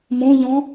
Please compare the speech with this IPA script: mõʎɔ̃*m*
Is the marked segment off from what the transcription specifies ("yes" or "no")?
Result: yes